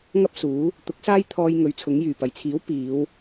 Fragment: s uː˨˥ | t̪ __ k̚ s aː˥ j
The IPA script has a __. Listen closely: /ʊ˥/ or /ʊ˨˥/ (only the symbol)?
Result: ʊ˨˥